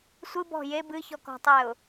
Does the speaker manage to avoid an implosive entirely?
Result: yes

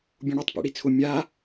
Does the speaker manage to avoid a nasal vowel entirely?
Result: no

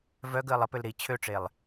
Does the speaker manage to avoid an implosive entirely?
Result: yes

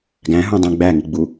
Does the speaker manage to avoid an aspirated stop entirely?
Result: yes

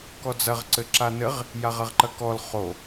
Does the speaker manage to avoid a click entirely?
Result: no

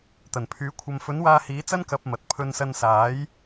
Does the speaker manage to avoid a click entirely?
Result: yes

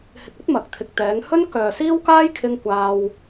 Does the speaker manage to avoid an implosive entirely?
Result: yes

